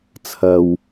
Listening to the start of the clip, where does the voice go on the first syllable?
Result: low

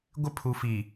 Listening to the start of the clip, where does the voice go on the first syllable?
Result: high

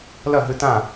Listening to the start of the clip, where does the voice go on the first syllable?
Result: falling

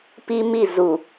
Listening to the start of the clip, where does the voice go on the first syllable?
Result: high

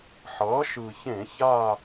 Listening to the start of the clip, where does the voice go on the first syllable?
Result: rising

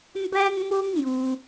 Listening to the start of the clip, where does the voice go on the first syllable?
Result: high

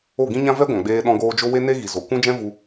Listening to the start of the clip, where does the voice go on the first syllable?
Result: falling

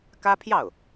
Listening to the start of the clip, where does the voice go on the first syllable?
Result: high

